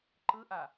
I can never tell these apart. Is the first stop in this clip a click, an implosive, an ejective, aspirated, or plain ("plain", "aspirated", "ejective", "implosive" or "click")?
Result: click